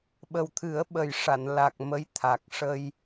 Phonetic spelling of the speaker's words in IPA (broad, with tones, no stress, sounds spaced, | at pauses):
ɓ ə˨˩ w t̪ʰ ɨ˨˩˦ ə̯ ɓ ə˨˩ j ʂ a˨˩˨ n l a˨˩ k̚ m ə˧˥ j t̪ʰ a˨˩ k̚ ʂ ə˧ j